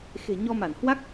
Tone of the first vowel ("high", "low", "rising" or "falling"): low